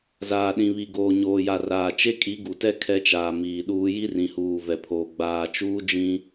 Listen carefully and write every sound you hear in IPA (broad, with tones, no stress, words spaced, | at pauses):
zaː˨ɗĩ˨βi˨ ɡoː˨ɲoː˨ja˨ raː˨ t͡ʃe˦kʼi˨˦ɡu˨tɛ˦ kʰɛ˦t͡ʃaː˨miː˨ɗuː˦ ji˦rĩ˨huː˨ vɛ˨pʰoː˨ ɡ͡baː˨t͡ʃuː˦ d͡ʒĩ˦